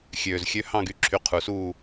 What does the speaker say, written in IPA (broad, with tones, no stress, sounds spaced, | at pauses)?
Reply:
xʲ øː˨˩ z xʲ ø˧˥˧ h ɑ̃˥˨ ɡ y˨˦ ǁʰ y˨˦ qʰ u˨˩ s uː˥˨